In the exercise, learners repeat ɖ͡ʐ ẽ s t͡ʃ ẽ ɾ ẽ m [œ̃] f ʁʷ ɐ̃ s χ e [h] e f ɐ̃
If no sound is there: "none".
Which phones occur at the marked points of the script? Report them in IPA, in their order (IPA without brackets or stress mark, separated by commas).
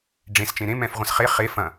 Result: ɛ̃, χ